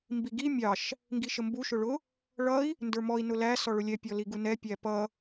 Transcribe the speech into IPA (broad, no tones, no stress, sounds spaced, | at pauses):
m b i ɡ i mʲ ɑ ʃ | ŋ ɡ i ʃ ə m b u ʃ ʊ ɭ ʊ | ɭ ʌ i̯ | n d ə˞ m ɔ i̯ n ʊ l æ s ɔ ɭ ʊ lʲ ɛ pʲ ɔ l i ɡ u n ɛ pʲ æ p ʌ